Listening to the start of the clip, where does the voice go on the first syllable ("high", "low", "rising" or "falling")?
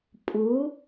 rising